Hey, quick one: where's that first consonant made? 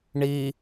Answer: retroflex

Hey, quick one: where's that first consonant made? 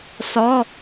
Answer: tongue tip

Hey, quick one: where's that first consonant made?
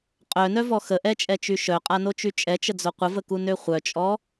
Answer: uvula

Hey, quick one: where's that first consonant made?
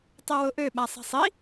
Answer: tongue tip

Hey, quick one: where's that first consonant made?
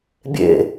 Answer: lips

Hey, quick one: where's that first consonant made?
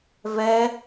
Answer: lips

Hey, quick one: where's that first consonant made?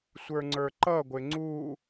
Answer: tongue tip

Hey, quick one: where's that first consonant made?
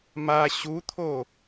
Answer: lips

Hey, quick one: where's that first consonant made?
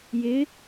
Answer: palate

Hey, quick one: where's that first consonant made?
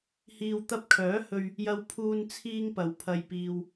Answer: throat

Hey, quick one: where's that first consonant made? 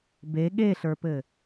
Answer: lips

